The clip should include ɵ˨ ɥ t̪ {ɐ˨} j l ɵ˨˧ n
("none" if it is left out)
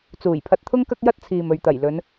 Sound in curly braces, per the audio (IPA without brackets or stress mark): ɐ˨˩